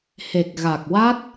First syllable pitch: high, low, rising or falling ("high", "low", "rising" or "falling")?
low